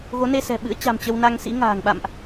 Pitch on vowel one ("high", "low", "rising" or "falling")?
rising